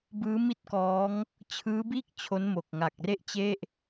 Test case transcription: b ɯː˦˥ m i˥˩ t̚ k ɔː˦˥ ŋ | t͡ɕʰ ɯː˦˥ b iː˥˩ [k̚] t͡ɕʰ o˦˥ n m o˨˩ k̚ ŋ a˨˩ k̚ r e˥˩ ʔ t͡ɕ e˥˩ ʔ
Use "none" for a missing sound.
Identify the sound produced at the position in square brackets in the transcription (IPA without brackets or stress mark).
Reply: k̚